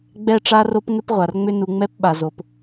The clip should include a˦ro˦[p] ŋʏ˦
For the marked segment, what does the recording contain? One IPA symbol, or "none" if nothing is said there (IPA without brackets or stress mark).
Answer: p